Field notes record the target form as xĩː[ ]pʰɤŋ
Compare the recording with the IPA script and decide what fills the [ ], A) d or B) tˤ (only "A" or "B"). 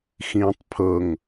B